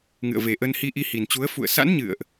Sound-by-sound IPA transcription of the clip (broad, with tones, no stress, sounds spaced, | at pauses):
ŋ ɨ̰˧˨ ə̯ v e˨˩ ʔ ə˧ n h i˧ ʔ i˧ h i˨˩ n t͡ɕ u˨˦ ə̯ f ṵ˧˨ ə̯ s a̰˧˥ n ɲ ɨ̰˧˨ ə̯ ʔ